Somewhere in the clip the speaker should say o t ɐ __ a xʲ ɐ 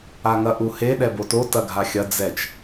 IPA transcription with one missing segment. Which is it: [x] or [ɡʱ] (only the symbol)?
ɡʱ